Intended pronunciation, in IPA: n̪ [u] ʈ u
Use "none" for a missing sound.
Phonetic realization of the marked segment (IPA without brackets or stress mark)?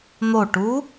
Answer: o